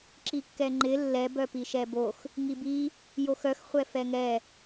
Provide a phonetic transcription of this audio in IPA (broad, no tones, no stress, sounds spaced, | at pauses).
ǁ i kː ɛ ŋ͡ǃ ɪ lː ɛ b œ p i ʃ ɛ b o x | ŋ i b i | j o x œ x χʷ ɛ f ɛ ŋ ɛ